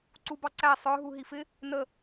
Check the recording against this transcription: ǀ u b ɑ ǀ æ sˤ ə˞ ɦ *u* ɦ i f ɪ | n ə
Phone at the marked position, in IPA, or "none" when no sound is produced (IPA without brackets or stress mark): u